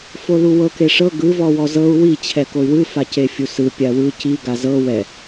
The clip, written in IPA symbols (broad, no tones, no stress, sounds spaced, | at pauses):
f o l u w ɤ k e ʂ ɤ ɡ ɯ v ɔ w ɔ z ɤ u̯ w i t͡ɕʰ ɛ k o y̯ w ɯ f a c e fʲ u s ɯ pʲ a w ɯ c i ɡ a z ɤ w ɛ